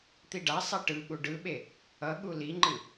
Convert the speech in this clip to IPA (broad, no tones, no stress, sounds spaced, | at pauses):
t̪ i ɖ a sˤ ɛ ʈ ɯ ɠ u ɖ ɯ ɓ e | ʌ ɠ u l i ŋ͡ǃ ɯ